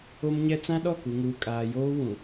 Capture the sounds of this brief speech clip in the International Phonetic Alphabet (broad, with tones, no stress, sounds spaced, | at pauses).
o˦ m ɲ ɛ˦ t͡s ã˦ ɗ ɔ˦˨ k u˨ ŋ uː˨ kʼ aː˨ j oː˦ w ũ˨